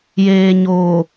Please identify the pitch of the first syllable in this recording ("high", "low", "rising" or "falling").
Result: low